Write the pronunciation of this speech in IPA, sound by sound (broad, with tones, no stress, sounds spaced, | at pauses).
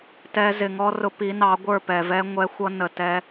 t ɛ˧ z ɪ˨ ŋ ɔ˦ r ʊ˧ p i˨˦ n ɑ˨˦ ɡʷ ə˞˦˨ p ɛ˨ v ɛ˦ ŋʷ ɛ˧ xʷ ʌ˧ n ə˨ t ɛ˦